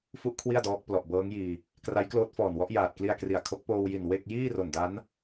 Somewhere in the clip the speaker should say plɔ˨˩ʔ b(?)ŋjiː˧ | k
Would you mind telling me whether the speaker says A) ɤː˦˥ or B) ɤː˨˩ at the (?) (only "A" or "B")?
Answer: A